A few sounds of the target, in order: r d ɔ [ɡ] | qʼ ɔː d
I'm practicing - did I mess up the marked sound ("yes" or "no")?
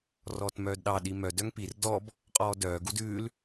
yes